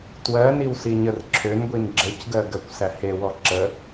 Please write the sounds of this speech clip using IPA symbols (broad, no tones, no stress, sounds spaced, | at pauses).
t w ɜ n i w s i ɲ ə r ǁʰ ø n ɡʷ i n ɡ͡ǁ ə c ɡ ɜ ɡ ɜ kʷ s æ h e w ɔ ǁ ə